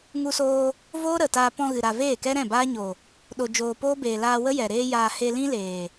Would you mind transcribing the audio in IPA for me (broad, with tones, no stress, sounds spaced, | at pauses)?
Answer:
ŋ u˧ s oː˧ | v oː˦ ɾ ə˨ t aː˧ p ɔ̃˧ ɣ ɨ˨ ɾ a˨ v eː˦˨ k ɛ˦ ɾ ɛ̃˦˨ b aː˦ ɲ o˨ | ɗ o˧ d͡ʒ oː˧ p oː˦ b eː˨ l aː˧ w ə˦ j ɛ˨ ɾ eː˦ j aː˧ h e˧ l ĩ˦ l eː˨